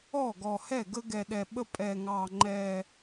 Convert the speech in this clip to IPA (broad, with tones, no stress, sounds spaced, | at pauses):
ɔ˥˩ ɡ ɔ˨˩ h ɛ˥˩ ɡ ə˦ ɡ ɛ˨˩ ɗ ɛ˨˩ ɓ ə˦ pʼ ɛ˨˩ ŋ ɑ˨˩ ŋ͡ǃ ɛ˨˩